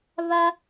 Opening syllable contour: high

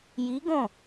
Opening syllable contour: rising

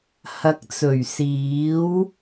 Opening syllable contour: low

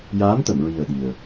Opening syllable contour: rising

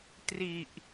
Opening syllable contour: low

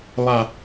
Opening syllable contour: high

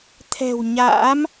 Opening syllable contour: low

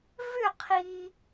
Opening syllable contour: falling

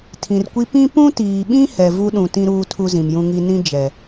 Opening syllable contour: low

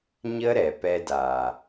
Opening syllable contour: high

